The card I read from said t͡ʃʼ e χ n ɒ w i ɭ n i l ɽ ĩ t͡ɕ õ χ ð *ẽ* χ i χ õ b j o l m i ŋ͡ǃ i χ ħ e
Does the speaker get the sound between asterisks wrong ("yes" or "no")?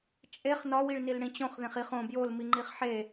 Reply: no